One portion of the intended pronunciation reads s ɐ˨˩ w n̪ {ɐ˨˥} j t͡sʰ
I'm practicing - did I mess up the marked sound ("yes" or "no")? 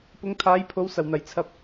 yes